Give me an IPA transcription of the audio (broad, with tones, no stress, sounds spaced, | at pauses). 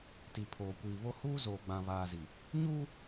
t i˨ pʰ oː˨ kʷ iː˨ β o˦ h uː˦ z oː˨ ɡ͡b ã˨ β aː˨ z i˨ | ɲ uː˦